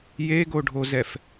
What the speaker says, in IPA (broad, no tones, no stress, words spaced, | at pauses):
jeɡoɖʱozɛf